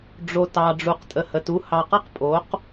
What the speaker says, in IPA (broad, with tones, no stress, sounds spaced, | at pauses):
ɖ͡ʐ o˨ t ɑ˨ ɖ͡ʐ u˨ q tʼ ə˨ h ə˨ t u˦ h ɑ˨ q ʌ˦ q pʼ o˨˦ q